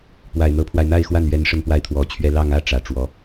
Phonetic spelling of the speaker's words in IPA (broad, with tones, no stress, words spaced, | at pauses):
pwa˨˩ɪ̯n̪ɤ˧˥pʰwa˧ɪ̯ n̪a˥˧ɪ̯xwa˥˩nɥɛ˧˥n ʂə˥npwa˥˩ɪ̯t̪ʰwɔ˧˥t͡ɕʰɥɛ˥ lɑ˥˧ŋ ä˥˩ ʈ͡ʂä˨˩ʈ͡ʂwɔ˧˥